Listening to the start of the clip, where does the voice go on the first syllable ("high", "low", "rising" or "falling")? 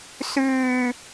low